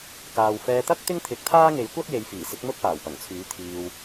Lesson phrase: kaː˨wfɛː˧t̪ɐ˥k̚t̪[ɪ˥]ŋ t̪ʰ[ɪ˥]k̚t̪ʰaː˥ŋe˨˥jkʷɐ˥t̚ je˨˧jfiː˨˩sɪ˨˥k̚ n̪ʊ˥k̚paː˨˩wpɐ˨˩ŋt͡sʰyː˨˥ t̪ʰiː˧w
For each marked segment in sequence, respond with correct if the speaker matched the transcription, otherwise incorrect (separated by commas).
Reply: correct, incorrect